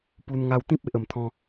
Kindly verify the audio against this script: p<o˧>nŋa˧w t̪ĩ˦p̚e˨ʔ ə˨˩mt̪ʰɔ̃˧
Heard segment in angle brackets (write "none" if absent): u˧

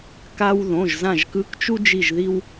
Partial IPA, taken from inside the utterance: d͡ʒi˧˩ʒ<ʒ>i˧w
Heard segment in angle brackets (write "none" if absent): ð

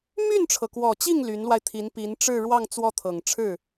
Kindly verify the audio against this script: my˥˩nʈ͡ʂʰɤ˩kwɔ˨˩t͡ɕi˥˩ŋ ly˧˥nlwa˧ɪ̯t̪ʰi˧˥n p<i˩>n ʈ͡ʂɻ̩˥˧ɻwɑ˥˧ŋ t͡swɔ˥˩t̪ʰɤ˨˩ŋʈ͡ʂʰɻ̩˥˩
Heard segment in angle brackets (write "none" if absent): i˧˥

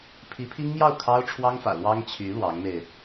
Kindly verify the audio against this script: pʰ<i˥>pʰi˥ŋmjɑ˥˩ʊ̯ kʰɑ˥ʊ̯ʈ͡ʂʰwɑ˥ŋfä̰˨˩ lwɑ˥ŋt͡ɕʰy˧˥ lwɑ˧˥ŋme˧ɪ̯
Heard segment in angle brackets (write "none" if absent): i˧˥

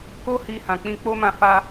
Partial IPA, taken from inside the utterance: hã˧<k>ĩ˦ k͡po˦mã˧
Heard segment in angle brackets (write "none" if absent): k͡p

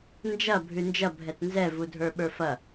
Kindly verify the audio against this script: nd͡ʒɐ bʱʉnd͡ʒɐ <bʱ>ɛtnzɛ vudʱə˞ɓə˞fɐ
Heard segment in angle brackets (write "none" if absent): bʱ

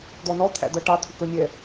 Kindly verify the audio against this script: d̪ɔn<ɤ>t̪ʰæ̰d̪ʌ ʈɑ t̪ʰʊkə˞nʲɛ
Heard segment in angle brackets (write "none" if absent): ɔ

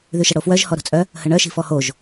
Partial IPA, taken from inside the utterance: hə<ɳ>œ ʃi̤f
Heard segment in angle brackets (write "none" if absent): ɳ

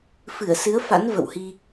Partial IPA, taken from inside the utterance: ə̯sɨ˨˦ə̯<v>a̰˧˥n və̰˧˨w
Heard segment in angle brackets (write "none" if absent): f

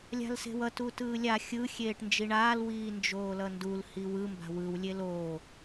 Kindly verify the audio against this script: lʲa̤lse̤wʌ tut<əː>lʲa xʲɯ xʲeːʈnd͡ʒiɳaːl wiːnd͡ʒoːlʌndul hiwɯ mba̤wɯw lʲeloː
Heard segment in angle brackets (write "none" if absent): ɯː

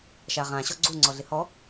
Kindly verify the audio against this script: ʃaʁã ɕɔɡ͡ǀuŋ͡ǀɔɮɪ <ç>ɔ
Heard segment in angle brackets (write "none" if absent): h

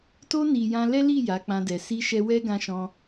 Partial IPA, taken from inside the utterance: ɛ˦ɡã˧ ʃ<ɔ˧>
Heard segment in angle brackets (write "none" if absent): ɔ̃˧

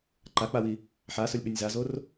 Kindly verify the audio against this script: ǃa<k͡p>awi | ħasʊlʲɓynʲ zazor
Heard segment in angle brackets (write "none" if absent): k͡p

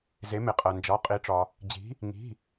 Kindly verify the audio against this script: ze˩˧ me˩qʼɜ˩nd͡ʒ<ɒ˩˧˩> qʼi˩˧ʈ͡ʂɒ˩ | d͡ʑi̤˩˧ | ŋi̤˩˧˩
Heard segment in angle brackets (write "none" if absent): ɒ˩˧˩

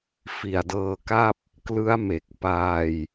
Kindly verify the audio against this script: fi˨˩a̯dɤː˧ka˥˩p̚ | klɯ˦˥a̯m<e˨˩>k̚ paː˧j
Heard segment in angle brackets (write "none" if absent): e˨˩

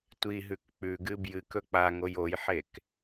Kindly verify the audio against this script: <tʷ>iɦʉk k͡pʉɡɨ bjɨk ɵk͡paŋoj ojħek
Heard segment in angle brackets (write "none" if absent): tʷ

